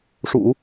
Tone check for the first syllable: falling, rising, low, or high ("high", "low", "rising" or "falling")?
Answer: low